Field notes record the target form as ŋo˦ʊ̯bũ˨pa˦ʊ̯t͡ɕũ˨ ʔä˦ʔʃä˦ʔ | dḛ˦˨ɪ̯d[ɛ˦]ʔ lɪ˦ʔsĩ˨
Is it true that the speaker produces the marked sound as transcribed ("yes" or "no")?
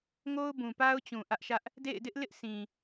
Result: no